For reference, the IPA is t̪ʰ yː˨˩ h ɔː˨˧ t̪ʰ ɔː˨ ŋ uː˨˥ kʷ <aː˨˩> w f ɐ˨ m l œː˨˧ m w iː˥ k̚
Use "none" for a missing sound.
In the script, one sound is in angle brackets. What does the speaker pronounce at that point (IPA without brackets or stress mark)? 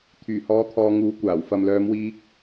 aː˨˩